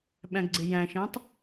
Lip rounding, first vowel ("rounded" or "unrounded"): unrounded